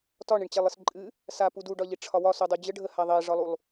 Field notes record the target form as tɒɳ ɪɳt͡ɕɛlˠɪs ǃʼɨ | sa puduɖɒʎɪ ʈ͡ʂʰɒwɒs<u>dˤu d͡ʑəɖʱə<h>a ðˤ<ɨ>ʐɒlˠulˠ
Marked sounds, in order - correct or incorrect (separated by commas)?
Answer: correct, correct, incorrect